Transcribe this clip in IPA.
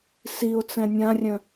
siʊ̯t͡sɛ̃ nʲãrʲœ̃

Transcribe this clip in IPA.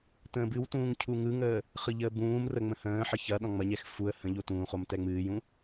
tə̃ːbɨwtũːŋ cʰuŋɯŋəː | χɯʎəːbũːmrə ŋ͡mə̃hə̃ːħə çɐ ɗɔ̃ŋ͡mɐɲɛx fuə̯ hə̃ʎo tũːχom tɛŋ͡mɨːjũ

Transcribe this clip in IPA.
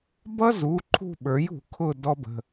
bʌ˦zu˩˧˩ ǃʰṳ˦˨ɓə˞˩˥jṳ˧˩˧ kʰʊ˦˨ dɔ˦bə̤˩˧˩

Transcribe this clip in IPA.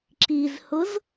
ǁizhʊz

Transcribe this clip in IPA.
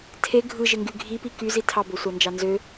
tʰe ɡʱɯ ʒeŋɡy ɡʱipi ky zitʰɑbosʷɑ nd͡ʒɑnzø

